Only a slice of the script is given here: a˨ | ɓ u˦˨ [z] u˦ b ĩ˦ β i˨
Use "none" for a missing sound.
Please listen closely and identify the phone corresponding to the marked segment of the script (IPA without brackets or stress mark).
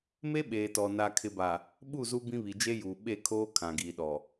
z